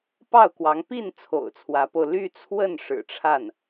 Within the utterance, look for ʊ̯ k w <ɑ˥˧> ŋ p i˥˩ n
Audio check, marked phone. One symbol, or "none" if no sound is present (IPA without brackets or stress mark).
ɑ˧˥